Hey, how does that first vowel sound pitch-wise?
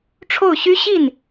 falling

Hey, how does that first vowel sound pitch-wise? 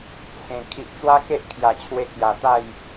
low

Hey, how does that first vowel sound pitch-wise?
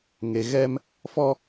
low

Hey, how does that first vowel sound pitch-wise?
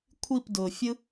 falling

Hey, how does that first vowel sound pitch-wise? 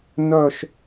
falling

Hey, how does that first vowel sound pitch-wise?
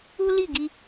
high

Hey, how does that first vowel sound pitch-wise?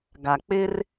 low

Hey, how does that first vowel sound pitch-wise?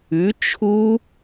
rising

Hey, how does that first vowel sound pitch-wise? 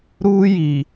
high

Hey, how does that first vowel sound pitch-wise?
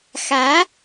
rising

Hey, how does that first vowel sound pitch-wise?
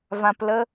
low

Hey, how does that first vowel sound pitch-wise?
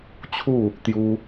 falling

